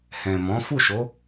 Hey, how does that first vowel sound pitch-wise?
low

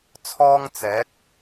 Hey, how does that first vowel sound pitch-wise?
high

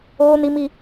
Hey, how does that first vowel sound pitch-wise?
high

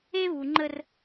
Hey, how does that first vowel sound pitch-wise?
high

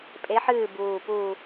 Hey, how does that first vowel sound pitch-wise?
rising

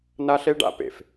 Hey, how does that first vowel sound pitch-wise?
high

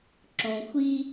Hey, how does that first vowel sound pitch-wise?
low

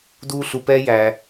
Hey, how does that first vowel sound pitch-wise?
high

